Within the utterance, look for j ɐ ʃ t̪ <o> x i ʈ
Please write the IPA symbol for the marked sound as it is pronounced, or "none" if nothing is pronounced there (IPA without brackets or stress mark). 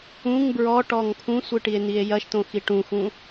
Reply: õ